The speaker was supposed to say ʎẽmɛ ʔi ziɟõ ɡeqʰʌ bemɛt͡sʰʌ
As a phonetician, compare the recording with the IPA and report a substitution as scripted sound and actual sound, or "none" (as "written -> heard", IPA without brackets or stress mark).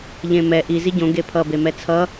qʰ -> pʰ